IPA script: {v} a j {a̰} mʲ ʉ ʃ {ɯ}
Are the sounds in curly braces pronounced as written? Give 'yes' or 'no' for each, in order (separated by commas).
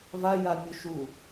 yes, no, no